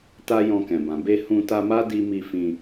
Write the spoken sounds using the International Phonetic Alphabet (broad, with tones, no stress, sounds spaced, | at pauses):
t a˦ j ɔ̃˧ k ɛ̃˨ b ã˨ b e˧ h ũ˧ t a˧ m a˦ d i˦ m i˦ f ĩ˧